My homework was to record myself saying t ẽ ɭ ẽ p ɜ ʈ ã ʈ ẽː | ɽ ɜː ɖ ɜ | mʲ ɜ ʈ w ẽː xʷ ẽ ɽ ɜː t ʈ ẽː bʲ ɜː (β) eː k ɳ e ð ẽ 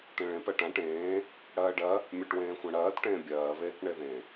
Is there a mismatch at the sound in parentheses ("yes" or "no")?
no